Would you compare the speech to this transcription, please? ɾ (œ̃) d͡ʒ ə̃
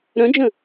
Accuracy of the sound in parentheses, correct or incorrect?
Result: correct